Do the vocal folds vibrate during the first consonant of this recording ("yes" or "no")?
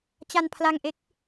no